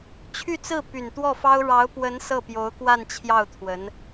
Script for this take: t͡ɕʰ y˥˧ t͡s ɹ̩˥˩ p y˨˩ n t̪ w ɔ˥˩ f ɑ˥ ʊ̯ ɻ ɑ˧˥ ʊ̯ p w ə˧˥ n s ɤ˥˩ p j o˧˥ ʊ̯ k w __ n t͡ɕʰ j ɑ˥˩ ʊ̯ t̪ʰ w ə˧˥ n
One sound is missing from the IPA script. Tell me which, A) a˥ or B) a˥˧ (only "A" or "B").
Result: B